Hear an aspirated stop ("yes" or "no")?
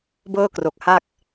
no